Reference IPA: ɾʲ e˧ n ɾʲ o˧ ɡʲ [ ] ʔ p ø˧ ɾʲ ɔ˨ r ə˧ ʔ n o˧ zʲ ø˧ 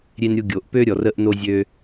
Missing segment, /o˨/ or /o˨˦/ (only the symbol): o˨